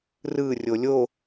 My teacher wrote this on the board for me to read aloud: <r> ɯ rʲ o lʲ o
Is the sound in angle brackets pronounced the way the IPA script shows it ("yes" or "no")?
yes